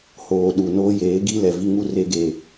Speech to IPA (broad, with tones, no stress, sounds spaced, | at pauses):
h oː˨ ɗ u˨ n oː˦ j eː˨˦ ɡ i˦ l ɛ˨ v i˦ ŋ u˦ r e˦ ɡ e˨